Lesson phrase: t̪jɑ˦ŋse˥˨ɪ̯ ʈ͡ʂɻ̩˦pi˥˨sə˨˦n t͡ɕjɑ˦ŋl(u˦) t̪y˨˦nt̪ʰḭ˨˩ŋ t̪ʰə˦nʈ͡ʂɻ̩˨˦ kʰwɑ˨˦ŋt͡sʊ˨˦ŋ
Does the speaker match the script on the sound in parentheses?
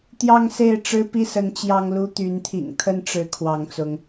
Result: yes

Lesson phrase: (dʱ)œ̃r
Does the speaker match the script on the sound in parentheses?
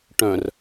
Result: no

